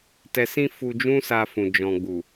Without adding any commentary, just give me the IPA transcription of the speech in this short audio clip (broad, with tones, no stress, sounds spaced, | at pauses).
t ɛ˨ s ĩ˧ f u˧ d͡ʒ ũ˦ s a˧ f ũ˨ d͡ʒ ɔ̃˨ ɡ͡b u˨